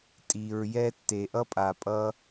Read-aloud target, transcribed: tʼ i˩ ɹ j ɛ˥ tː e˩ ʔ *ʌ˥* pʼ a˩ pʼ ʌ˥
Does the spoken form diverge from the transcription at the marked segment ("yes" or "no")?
no